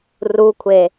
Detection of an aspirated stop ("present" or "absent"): present